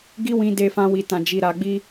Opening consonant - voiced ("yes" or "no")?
yes